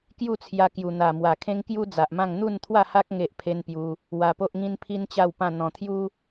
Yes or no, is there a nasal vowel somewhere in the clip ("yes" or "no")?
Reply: yes